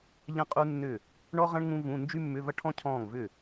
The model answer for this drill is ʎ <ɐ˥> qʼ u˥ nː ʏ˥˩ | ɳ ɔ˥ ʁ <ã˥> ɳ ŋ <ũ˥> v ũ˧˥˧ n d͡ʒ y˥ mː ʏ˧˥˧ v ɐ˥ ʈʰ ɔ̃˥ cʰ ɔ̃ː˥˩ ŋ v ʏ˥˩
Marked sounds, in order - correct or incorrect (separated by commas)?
incorrect, incorrect, correct